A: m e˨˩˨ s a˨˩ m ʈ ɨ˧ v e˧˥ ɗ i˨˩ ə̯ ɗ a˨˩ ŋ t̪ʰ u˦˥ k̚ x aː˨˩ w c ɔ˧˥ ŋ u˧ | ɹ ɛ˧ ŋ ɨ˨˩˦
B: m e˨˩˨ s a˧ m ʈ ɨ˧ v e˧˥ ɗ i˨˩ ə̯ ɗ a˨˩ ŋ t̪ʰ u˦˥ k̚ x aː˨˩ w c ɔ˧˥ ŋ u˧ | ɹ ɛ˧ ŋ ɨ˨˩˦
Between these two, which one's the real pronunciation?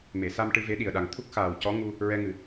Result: B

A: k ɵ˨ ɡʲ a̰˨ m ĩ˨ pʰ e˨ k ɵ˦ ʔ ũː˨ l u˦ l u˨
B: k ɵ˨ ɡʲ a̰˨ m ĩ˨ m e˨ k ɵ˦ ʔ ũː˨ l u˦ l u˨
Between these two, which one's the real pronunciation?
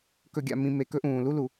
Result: B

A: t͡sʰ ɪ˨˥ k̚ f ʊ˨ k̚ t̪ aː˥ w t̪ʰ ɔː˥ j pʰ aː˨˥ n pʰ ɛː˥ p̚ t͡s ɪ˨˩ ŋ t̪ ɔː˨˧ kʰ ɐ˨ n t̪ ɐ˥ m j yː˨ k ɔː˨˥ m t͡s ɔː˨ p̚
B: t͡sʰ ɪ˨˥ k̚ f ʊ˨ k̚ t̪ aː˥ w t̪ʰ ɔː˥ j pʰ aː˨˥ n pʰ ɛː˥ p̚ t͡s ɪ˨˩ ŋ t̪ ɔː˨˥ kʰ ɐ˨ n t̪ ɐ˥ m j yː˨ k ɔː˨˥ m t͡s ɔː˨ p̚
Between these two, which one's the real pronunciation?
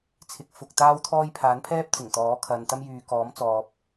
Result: B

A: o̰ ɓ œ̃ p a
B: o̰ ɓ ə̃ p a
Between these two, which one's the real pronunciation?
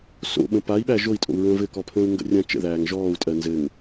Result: B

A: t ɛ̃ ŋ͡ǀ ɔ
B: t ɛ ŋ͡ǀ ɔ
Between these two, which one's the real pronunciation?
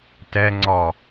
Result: B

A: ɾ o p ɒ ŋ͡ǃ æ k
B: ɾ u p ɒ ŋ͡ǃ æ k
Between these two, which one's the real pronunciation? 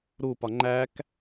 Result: B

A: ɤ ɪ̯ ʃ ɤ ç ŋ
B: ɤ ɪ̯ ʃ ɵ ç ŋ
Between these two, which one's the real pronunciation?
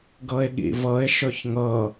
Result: B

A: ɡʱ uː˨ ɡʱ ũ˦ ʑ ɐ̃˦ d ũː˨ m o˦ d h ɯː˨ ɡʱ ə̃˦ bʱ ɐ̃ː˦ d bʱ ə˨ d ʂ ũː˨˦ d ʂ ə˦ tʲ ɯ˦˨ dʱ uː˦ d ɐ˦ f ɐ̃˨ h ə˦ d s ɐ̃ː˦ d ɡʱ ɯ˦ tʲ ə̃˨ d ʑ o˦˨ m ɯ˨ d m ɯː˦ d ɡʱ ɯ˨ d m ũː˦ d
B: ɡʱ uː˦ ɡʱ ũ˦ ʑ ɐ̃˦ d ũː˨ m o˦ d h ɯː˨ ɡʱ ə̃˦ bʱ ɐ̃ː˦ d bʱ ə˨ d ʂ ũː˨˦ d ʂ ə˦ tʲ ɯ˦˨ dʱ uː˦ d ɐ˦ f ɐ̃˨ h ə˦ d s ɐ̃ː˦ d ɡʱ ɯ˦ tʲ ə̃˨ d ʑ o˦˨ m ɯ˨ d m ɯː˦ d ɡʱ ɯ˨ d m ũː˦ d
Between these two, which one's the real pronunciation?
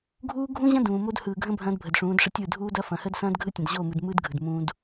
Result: B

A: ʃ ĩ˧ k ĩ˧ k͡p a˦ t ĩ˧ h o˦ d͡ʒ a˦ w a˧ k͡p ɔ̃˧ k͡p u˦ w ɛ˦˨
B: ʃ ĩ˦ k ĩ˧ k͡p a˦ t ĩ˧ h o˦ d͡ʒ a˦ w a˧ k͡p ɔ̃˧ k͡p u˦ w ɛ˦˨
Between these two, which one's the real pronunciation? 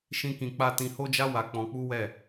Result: B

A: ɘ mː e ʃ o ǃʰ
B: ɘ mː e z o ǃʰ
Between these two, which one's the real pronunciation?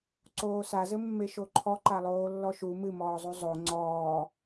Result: A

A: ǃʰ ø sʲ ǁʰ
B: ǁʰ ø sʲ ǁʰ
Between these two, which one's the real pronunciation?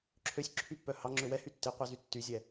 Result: B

